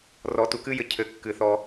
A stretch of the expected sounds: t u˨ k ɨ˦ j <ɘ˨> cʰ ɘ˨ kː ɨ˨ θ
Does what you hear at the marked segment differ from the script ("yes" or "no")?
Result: no